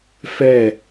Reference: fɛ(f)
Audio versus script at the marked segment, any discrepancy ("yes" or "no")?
yes